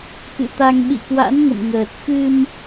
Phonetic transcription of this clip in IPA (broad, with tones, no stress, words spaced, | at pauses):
kɨ̰˧˨t̪a˧ŋ ɓḭ˧˨kwa̰˧˥n ŋə̰˧˨mŋəː˨˩t̚ xɨ˧m